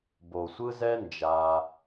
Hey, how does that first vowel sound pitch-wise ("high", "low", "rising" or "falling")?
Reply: low